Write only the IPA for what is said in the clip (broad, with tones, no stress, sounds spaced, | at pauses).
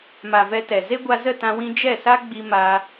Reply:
m a˨ v ɛ˧ t ɛ˨ z e˦ ɡʷ a˧ z ə˦˨ t ã˧ w ĩ˧ d͡ʒ ɛ˦˨ s a˦ ɡ͡b i˧ m a˧